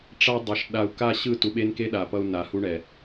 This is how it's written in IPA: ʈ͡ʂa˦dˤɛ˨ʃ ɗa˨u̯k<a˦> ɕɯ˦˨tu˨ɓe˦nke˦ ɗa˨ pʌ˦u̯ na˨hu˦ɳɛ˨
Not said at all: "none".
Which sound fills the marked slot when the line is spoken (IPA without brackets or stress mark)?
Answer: a˦˨